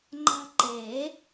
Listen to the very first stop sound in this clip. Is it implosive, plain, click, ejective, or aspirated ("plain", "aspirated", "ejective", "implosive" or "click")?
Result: click